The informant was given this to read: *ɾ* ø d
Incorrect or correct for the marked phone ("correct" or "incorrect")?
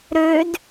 correct